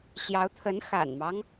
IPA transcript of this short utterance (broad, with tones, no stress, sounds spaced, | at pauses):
ɕ j ɑ˧˥ ʊ̯ t̪ʰ ə˧˥ n x a̰˨˩ n m ɑ˦ ŋ